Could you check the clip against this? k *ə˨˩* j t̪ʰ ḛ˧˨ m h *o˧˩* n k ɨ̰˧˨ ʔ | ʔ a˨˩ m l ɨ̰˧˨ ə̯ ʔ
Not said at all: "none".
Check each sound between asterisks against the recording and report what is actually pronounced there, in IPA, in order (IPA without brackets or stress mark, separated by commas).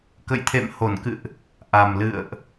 ə̰˧˨, o˧˩